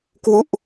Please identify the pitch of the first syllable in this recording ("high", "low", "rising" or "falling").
falling